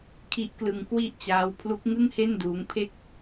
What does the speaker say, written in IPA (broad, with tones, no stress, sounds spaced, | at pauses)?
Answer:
kʰ i˦˥ ʔ k l ɯ˧ ŋ k w i˥˩ ʔ t͡ɕ aː˦˥ w pʰ l u˦˥ k̚ ŋ ɯ˥˩ ŋ h e˥˩ n d uː˦˥ ŋ pʰ e˥˩ k̚